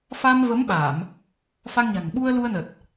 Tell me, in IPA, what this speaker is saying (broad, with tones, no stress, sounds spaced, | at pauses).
f a˧ m v ə˨˦ m ɓ aː˧˩˨ m | f a˧ ŋ ɲ a̤˨˩ ŋ ɓ u˧ ə̯ l u˧ ə̯ n ə˨˩ t̚